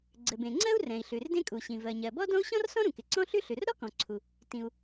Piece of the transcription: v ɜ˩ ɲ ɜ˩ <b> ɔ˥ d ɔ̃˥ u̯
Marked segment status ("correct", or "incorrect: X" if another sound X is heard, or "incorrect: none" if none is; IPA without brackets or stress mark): correct